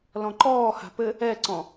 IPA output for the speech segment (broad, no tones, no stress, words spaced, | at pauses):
lɔ̃ǃɔːha̤ pɘ | ɛǀɔ̃